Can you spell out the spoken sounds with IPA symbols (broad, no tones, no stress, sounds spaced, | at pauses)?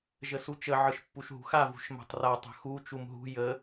ʒ ə s u t͡ʃ ə ʕ ɯ ʃ pː u ʃ ɦ ṳ x a v ṳ ʃ m a̤ tˤ r a tˤ ə̤ x u t͡ʃ u m ɦ ṳ j ə